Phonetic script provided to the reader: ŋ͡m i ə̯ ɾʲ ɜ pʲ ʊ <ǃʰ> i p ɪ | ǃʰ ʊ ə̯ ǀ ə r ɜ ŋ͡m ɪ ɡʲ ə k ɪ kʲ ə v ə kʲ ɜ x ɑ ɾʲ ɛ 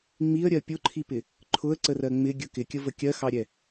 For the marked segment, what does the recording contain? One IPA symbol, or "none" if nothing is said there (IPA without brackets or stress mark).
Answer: ǃʰ